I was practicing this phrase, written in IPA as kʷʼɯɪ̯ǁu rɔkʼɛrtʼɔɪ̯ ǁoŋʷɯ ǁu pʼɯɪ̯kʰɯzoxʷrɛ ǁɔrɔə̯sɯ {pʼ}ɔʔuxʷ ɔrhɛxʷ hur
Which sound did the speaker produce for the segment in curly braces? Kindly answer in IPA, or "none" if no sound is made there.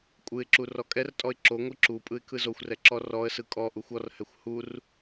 kʼ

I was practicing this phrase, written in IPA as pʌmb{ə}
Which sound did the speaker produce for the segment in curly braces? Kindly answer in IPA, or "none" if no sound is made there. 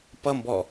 ɔ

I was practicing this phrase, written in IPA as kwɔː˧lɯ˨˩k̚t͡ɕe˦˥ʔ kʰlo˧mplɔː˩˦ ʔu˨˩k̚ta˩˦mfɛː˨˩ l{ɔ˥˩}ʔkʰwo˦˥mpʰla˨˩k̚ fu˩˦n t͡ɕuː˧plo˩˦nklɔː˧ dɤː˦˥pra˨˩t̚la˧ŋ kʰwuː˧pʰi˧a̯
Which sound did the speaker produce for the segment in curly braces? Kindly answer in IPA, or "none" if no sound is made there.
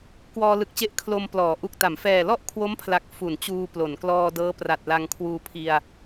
ɔ˥˩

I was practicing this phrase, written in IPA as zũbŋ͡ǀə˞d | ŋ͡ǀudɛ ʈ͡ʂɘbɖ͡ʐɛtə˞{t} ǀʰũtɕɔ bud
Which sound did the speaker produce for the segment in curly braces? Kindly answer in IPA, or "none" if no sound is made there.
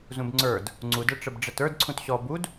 d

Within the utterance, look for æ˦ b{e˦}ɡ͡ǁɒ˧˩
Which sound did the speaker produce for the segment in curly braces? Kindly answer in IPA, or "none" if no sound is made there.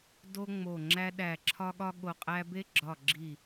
e˦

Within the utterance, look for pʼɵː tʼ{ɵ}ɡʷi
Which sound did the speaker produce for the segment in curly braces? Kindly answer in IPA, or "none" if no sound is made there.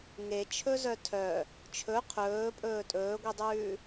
ɵː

